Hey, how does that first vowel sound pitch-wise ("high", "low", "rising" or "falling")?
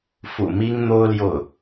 low